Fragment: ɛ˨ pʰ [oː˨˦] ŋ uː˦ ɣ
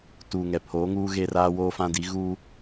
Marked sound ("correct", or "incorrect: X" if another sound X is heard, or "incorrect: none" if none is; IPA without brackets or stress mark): correct